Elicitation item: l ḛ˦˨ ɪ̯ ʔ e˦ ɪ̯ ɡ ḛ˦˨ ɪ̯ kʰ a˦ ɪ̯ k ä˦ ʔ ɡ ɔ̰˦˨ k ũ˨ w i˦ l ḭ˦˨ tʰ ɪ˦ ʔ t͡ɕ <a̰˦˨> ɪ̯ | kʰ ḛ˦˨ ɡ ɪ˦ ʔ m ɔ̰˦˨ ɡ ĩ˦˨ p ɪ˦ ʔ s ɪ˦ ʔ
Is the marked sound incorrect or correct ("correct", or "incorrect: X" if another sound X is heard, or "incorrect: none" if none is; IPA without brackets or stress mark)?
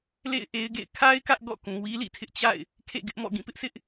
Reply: correct